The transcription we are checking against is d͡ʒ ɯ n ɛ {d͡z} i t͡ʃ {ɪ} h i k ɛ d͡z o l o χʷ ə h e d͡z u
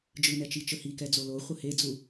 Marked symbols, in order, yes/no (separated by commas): no, no